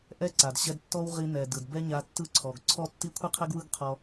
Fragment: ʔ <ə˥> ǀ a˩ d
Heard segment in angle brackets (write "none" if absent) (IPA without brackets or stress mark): ɛ˥